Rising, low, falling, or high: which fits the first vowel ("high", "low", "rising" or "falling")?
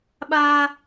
high